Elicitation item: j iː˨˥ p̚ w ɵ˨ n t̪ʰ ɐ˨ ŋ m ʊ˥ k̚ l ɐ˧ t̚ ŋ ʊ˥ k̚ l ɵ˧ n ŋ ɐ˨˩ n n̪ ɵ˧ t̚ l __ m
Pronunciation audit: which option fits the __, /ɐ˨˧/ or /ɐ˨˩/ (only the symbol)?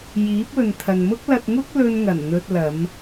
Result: ɐ˨˧